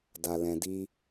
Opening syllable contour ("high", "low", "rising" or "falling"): low